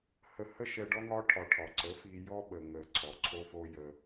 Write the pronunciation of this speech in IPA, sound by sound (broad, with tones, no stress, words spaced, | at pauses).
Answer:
hə˧hə˦ ʃɛ˧ɖɔ˦ ŋɒ˦ ʈʰɒ˨ ʈʰɒ˨ǀə˨˦ fi˧ jɔ˦ɓə˨ ŋə˨ ǀʰɔ˨ǀʰo˦fo˦ jə˧